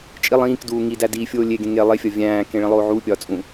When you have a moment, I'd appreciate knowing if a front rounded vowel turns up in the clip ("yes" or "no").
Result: no